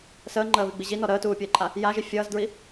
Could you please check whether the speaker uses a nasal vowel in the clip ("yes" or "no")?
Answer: no